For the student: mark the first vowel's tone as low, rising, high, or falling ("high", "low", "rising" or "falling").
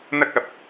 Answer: high